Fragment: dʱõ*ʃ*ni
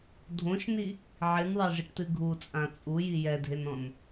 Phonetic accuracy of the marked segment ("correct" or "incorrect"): correct